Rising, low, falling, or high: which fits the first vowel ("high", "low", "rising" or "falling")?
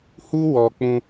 high